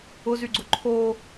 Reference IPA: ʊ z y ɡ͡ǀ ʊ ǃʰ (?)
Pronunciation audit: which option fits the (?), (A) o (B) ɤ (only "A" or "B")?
A